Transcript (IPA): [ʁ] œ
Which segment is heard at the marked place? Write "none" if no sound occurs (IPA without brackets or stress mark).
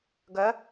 ɡ